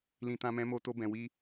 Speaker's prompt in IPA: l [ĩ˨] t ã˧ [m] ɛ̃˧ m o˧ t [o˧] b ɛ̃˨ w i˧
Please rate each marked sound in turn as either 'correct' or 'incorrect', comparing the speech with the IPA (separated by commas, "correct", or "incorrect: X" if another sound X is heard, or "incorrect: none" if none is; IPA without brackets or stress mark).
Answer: correct, correct, correct